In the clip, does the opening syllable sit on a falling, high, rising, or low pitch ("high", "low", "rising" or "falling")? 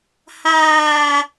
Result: low